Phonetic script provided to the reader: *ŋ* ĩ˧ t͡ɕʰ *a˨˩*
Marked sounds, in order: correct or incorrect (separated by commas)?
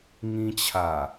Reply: correct, correct